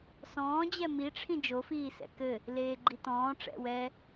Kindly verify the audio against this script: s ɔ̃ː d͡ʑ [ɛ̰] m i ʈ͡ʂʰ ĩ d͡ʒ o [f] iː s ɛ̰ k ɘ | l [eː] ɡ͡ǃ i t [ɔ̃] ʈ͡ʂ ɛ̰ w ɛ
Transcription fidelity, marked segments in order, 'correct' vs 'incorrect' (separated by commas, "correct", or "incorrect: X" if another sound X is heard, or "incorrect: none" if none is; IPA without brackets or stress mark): incorrect: ɛ, correct, correct, incorrect: ɔ̃ː